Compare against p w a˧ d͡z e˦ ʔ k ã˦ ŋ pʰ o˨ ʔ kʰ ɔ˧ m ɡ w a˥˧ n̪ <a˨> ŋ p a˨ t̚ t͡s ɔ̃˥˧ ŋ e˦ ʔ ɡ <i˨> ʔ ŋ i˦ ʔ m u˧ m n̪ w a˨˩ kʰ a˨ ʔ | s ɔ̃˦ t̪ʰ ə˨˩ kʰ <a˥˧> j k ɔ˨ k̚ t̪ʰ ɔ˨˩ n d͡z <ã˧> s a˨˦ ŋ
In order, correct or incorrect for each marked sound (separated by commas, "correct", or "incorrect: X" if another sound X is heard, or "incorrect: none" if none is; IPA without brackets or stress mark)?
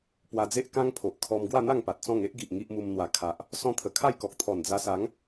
incorrect: a˥˧, correct, correct, incorrect: a˧